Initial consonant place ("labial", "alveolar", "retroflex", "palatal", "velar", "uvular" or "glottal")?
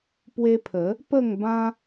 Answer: labial